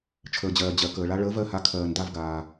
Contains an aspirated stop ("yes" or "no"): yes